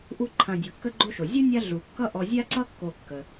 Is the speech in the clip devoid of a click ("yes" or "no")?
no